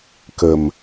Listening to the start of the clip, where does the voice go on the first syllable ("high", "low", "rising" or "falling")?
low